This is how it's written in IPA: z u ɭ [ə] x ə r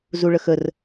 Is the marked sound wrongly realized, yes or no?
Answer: no